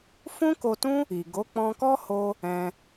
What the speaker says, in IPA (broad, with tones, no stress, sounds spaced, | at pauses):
f ũ˦ k o˧ t ũ˦ | i˨ ɡ o˨˦ k͡p ɔ̃˧ k ɔ˦ h o˧ | ɛ̃˧